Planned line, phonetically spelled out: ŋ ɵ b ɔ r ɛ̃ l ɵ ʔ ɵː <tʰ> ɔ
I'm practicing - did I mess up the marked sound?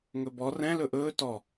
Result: yes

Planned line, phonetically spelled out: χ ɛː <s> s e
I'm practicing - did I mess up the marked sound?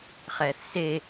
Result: yes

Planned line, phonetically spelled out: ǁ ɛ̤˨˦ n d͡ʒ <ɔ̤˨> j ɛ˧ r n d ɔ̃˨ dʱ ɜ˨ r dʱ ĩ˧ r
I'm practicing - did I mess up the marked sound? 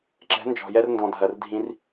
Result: no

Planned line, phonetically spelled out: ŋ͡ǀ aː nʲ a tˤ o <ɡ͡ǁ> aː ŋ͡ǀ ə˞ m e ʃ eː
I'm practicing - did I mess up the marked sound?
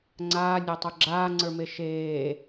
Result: no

